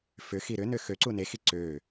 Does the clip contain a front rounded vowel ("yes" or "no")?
yes